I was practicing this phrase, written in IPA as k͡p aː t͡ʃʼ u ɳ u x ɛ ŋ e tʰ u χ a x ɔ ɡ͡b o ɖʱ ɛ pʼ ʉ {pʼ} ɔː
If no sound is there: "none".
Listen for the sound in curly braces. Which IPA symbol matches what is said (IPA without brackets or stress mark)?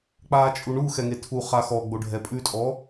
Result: tʼ